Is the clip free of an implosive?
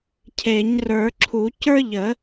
yes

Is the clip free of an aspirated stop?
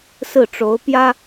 yes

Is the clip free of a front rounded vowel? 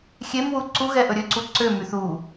no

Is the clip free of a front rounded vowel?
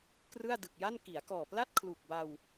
yes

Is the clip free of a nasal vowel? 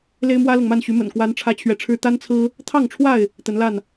yes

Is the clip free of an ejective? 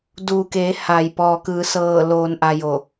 yes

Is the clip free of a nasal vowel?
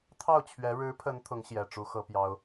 yes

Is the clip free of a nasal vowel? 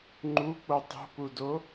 yes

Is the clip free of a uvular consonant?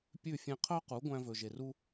no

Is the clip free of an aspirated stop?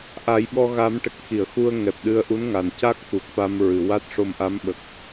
yes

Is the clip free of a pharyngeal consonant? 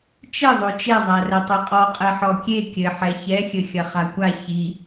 no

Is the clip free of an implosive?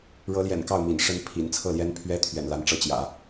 yes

